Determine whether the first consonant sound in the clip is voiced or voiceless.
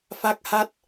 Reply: voiceless